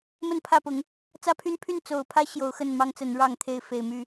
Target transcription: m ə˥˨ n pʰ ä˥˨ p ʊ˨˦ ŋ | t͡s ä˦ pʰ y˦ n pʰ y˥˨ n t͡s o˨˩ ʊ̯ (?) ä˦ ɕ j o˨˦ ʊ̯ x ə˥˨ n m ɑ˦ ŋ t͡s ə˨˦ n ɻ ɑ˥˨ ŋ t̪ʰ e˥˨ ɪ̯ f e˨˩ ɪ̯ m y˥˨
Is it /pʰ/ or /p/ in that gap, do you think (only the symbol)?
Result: pʰ